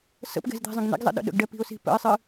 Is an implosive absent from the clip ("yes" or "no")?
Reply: no